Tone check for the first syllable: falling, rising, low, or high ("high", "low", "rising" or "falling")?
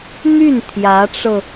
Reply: falling